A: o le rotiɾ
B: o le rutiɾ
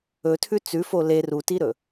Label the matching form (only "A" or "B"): B